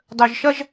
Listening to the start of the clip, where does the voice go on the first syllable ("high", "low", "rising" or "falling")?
low